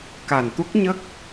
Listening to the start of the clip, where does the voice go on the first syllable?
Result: low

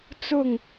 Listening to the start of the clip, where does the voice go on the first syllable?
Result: falling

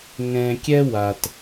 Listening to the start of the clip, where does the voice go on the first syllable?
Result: low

